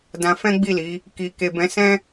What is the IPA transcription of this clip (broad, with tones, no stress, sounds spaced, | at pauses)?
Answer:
d ã˧ f ɛ̃˦ ɡ͡b i˦˨ l i˨˦ | k i˨ k e˨ b ɛ̃˨˦ s ɛ̃˦